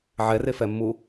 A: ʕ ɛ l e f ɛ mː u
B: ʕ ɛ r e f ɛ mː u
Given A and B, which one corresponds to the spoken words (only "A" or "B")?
B